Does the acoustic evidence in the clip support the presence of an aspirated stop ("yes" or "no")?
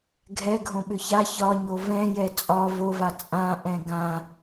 no